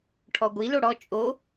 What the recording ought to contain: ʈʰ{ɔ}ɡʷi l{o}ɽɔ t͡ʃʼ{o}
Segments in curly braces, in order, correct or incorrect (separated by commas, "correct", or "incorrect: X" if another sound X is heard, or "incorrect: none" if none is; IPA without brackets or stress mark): correct, correct, correct